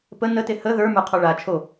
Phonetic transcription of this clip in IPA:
p ə n ə t e h ə ð ə˞ m ə˞ qʰ ɔ ɭ a t͡ʃʰ o

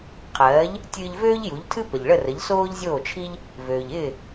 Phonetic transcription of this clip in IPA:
qʰ ɜː˩˥ ʎ | tʲ ɨː˧ ʎ v øː˥ ʎ j u˩˥ ʎ tʰ ɨ˥ p ə˩ ʎ ɭ ə˥˩ r ə˩˥ ʎ s oː˥ ʎ zʲ oː˥˩ t͡ʃʰ i˥ ʎ | v øː˩ ʎ ɪː˥˩

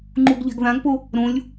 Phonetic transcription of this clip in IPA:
ŋ͡ǃ u ɡ ʎ a̤ ɡ ð ã ɡ p o | ɾ õ lʲ

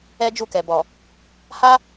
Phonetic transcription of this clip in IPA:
ɛ˦ d͡ʒ u˦˨ k ɛ˨ b ɔ˨ | h a˦

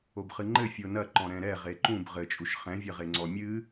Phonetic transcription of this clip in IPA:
o b χ ɨ ŋ͡ǃ ɘ fʲ o n ɐ ǃ ɔ̃ ɾ ɛ̃ ɾ ɛ ʁ e ǃ ũ b ʁ ɘ t͡ʃʼ u ʃ χ ɛ̃ vʲ ɐ ʁ e ŋ͡ǀ ɔ mʲ ɨ

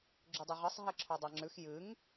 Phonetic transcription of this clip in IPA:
ɡ͡ǁ ʉ dˤ e ʁ ɨ sˤ ɦ e ǁʰ o dˤ a ŋ͡ǁ ʉ x j ɨ ŋ

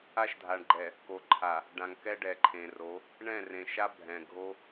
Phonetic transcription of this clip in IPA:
a˦ ʃ dʱ a˨ ɳ ɡ͡ǃ ɛ˨ | k o˨ ǃʰ a˨ | ɖ ã˨ ŋ k ɛ˦ ɖ ɛ˨ ǃʰ ẽ˨ r o˨˦ | ɳ ɛ̃˦˨ r ẽ˨ ʃ a˦ bʱ ɛ̃˨ ɡʱ o˦

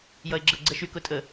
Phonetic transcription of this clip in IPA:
j ʌ e̯ ɡ͡ǁ ə ɡ͡ǀ ɛ ʃ y k ʊ tʼ ə

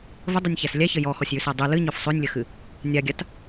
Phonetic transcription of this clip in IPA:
v ə dˤ ɨ nʲ ç æ s lʲ æ ç ə j ɔ x ɔ sʲ j ʉ s æ dˤ ʉ l ɨ ɲ ɔ f sˤ ʉ nʲ lʲ ə x ɨ | nʲ a ɡʲ a t

